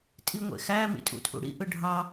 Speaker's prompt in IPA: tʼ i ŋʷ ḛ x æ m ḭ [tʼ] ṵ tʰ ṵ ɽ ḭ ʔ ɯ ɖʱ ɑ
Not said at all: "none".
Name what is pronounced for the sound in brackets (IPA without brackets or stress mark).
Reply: tʼ